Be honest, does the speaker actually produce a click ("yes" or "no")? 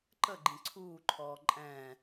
yes